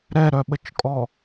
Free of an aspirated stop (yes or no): yes